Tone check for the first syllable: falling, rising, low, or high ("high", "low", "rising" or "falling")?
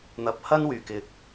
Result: rising